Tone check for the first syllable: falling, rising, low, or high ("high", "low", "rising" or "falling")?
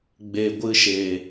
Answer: low